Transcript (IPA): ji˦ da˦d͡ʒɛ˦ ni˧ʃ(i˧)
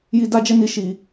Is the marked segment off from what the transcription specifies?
no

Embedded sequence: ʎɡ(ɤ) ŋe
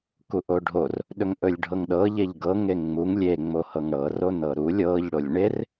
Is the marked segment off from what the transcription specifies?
no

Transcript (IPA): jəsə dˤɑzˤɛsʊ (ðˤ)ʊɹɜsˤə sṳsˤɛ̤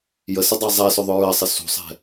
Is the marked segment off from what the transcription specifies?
no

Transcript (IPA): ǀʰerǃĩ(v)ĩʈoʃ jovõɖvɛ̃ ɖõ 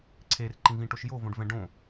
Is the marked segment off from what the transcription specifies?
no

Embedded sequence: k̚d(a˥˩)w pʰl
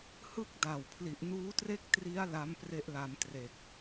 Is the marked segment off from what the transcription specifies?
yes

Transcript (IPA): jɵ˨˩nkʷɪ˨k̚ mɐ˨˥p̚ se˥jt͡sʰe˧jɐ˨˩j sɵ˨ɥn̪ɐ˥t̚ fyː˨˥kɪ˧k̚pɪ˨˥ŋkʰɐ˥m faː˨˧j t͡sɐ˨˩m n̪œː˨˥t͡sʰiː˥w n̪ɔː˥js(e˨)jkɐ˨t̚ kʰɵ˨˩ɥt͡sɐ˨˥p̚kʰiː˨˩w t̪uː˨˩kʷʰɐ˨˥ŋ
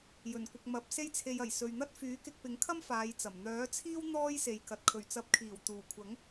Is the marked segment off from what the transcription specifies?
no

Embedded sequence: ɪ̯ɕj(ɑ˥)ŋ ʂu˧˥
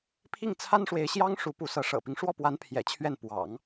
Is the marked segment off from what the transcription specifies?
no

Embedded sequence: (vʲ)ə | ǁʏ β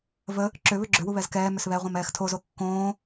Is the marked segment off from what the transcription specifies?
yes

